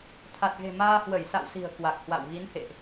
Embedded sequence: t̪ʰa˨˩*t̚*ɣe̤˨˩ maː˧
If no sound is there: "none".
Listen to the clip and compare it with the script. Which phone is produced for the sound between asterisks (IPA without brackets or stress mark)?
t̚